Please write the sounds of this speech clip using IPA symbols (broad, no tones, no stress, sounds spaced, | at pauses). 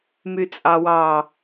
m y t͡sʼ ɑ w ɑ